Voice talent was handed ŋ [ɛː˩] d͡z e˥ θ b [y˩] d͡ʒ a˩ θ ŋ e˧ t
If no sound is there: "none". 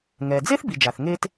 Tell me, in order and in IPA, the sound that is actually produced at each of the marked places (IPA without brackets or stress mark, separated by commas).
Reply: ɛː˩, i˩